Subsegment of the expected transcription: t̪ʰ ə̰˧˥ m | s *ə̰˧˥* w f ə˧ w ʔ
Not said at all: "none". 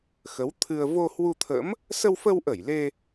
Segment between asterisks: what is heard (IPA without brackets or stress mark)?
ə˧